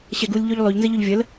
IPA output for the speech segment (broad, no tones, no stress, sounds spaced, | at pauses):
ɕ ɛ ɡ u lʲ ʎ ʉ ʎ lˠ ʉ ʎ n z ə ʎ ɵ ʎ vʲ ə l